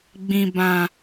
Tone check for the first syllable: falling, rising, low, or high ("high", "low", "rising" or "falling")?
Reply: low